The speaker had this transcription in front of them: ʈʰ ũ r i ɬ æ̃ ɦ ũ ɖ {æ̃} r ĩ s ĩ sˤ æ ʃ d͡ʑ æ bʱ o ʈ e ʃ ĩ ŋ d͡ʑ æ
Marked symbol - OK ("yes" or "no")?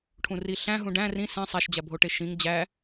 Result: yes